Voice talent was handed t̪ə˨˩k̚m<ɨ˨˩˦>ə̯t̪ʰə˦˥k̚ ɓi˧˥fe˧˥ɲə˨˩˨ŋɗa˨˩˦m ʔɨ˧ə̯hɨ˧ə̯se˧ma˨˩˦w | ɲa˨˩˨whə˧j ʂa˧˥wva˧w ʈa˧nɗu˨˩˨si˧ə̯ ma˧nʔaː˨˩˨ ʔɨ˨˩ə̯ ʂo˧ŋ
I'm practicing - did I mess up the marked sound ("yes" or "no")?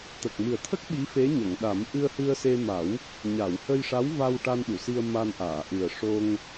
yes